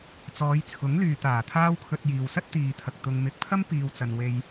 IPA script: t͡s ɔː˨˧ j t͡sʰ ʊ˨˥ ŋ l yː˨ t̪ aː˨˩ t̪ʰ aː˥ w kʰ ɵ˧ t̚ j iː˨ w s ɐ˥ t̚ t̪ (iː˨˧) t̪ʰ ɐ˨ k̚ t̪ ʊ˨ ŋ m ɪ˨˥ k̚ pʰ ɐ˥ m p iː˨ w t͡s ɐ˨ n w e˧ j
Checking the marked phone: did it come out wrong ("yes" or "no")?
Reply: yes